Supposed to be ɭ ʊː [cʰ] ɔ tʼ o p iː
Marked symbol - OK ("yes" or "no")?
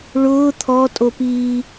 no